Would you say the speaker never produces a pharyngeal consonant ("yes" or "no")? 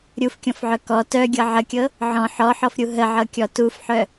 no